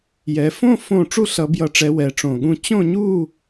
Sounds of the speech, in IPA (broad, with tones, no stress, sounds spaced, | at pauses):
j ɛ˩˧ f õ˥˨ f õ˥˨ ʈ͡ʂ u˥˨ ɬ ʌ˩˧ b j ʌ˨˩ ʈ͡ʂ ɛ˩˧ w ɛ˩˧ ʈ͡ʂ õ˨˩ ɠ ũ˥˨ t͡ɕ õ˥˨ ɲ u˥˨